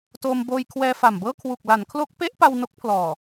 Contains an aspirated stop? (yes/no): yes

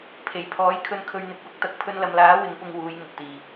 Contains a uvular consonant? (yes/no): no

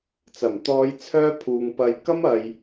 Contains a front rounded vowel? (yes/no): yes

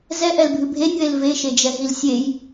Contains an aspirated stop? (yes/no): no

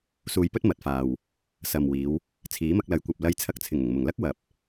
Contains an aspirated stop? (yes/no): yes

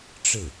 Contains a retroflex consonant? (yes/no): yes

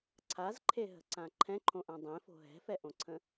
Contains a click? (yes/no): yes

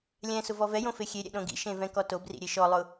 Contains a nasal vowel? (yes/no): yes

